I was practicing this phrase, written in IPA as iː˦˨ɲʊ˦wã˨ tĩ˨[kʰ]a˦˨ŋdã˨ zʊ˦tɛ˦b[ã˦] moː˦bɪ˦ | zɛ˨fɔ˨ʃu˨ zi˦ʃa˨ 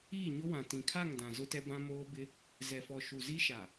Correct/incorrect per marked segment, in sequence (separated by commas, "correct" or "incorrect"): correct, correct